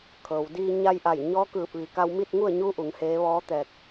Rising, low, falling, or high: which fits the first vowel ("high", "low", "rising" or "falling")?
low